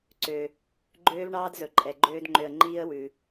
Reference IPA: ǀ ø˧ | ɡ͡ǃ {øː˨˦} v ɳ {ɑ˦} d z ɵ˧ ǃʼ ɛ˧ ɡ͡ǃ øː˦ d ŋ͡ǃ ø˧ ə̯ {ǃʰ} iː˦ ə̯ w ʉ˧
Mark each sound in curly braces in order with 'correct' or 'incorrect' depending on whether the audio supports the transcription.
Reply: incorrect: øː˦, incorrect: ɑː˦, incorrect: ŋ͡ǃ

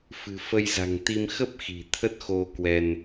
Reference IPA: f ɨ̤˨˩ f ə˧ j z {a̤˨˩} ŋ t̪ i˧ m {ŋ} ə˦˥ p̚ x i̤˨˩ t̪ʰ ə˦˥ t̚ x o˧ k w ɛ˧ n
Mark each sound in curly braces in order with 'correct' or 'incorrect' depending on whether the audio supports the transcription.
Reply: correct, incorrect: x

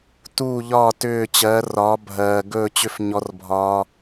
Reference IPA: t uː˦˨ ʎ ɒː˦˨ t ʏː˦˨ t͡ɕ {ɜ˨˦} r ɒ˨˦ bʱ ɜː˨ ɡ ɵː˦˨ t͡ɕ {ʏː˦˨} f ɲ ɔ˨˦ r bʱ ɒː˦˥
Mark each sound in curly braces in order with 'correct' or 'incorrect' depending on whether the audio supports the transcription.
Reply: correct, incorrect: ʏ˦˨

